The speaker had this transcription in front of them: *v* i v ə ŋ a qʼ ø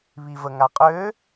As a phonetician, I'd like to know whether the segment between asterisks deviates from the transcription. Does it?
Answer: yes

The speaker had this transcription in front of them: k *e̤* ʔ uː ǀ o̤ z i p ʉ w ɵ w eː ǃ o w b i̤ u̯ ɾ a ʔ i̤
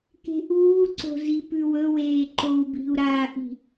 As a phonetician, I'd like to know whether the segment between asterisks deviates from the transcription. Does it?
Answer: no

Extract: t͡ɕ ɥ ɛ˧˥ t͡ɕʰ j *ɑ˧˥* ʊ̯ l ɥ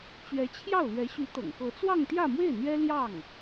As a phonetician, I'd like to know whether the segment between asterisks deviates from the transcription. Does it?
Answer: yes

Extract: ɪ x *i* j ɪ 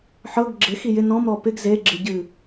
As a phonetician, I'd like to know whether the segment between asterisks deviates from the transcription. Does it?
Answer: no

